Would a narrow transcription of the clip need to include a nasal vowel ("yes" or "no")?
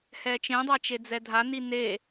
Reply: yes